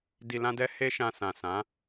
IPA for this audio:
d i˧ l ã˦ d ɛ˦ h e˦ ʃ ã˧ s ã˨ s ã˨˦

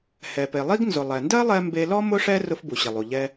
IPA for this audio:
h ɛ˩ p e˩ lˠ i˥ ɡ n z ʊ˩ lˠ ɛ˩ n d ɜ˥ lˠ ɛ˧ m b e˧ l ɔ˥ m ʊ˥ ʂ ɛ˥ r ʊ˧ f b u˩ ɕ ɪ˩ lˠ u˩ ʎ ɛ˧

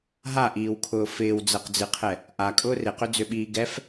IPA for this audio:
ɦ a ʔ iː w kʰ ʊː f ɪː w d͡z ɛ q d͡z ɨ qʰ ɛ | ʔ a kʼ ʊː r ɪ q ʏ d͡z ʏ ɓ iː ɡ ɛ f

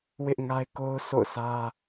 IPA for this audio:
w ɪ˦ ʔ ŋ a˦ ɪ̯ k o˦ ʊ̯ s o̰˦˨ ʊ̯ s ä˦

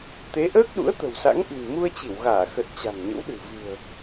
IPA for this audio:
t̪ e˨˦ ʔ əː˦˥ k̚ ɗ ṵ˧˥ ə̯ t̪ ə̤˨˩ w s a̰˧˥ ŋ ʔ i̤˨˩ n m u˧ ə̯ t͡ɕ i˧˩ w ɣ aː˧˩ x ə˨˩ t̚ t͡ɕ a̤˨˩ ŋ ɲ ə̰˧˥ w ɗ ɨ̤˨˩ v ɨ̤˨˩ ə̯

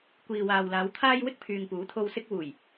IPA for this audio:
kʷ iː˨ w aː˨ w l aː˨˧ w t̪ʰ aː˧ j w ɪ˥ k̚ pʰ yː˨ ŋ p uː˨˥ t̪ʰ o˧ w s ɪ˧ k̚ w uː˨˩ j

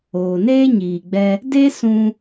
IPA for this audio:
oː˨ n eː˦ ɲ iː˨ ɡ͡b ɛ˧ | d e˦ s ũ˧

